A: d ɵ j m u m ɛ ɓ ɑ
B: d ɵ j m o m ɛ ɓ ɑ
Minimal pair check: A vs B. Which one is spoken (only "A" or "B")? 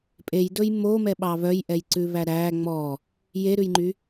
B